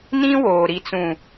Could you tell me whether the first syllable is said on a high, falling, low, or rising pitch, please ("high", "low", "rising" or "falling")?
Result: high